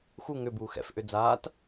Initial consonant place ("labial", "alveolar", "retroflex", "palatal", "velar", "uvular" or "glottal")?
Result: velar